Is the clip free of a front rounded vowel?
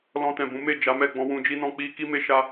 yes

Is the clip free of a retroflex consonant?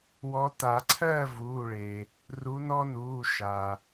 no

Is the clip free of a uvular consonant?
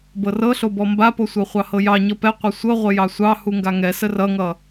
no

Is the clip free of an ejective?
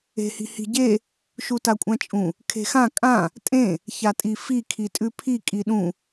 no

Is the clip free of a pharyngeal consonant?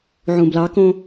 no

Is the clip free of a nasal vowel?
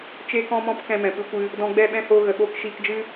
no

